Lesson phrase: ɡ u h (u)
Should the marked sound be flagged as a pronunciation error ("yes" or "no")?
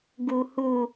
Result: no